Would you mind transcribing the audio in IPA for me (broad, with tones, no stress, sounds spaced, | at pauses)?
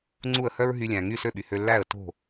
ŋ͡ǀ u˥˩ ə̯ h œ˥ ɹ ɦ y˧ lʲ æ̃˩ ŋ y˥˩ s ø˥˩ ɓ y˩ h ø˧ lː æ˥˩ ə̯ t o̤˥˩